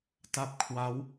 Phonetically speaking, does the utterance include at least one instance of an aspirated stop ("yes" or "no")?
yes